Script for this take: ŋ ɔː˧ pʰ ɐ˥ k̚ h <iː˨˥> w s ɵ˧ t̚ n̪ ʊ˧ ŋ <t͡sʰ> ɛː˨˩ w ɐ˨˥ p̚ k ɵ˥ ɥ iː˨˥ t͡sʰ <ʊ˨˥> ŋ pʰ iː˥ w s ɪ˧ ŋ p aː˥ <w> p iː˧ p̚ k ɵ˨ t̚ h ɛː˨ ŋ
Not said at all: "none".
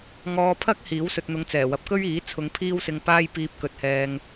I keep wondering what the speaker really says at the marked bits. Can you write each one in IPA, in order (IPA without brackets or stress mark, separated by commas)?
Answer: iː˨˥, t͡s, ʊ˨˥, j